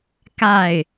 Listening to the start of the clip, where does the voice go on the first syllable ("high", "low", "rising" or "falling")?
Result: falling